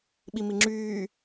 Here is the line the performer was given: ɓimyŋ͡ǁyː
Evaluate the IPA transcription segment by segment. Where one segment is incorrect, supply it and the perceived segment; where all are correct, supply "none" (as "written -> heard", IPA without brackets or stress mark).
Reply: y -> i